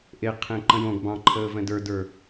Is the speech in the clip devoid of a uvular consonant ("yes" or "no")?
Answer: no